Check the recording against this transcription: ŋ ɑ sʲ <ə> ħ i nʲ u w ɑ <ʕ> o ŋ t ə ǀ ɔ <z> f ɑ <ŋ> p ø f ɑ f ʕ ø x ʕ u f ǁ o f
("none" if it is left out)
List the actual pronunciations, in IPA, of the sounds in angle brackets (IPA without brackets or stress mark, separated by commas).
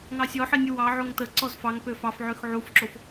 ɔ, ʕ, z, ŋ